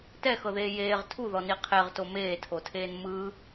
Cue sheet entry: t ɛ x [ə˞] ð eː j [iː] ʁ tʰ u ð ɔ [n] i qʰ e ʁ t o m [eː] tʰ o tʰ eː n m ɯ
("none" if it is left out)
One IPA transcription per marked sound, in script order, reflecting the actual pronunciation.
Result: ɤ, eː, n, eː

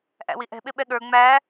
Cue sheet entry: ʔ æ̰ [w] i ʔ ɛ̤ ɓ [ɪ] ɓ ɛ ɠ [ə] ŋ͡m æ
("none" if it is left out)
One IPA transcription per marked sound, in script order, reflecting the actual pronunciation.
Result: w, ɪ, ə˞

